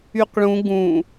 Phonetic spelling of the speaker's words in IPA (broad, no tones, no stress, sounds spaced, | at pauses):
y q ɭ ũ ɡ ũ